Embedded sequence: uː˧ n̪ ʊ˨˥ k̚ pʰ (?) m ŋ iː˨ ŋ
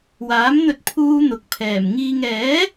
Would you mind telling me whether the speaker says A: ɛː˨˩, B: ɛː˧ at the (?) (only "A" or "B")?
A